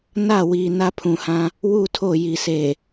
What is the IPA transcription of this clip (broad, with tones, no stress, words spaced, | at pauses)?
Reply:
na˦˨wiː˨ na˦pʰũ˨hã˦ | wu˦˨tʰo˦˨ji˨ se˨